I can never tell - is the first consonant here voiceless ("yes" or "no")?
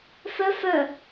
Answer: yes